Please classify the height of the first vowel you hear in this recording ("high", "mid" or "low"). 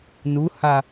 high